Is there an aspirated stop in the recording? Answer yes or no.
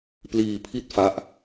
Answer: yes